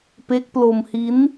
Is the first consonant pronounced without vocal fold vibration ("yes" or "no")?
yes